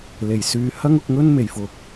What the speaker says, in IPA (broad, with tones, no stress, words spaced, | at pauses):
le˨˩jsyː˨˧ hɐ˥ŋʊ˨˥k̚ŋɵ˥n me˨˩jfʊ˨k̚